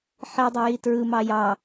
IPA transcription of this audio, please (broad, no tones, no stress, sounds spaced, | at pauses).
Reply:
ħ i dˤ e j i t ɹ ɯ m ɑ j ɑ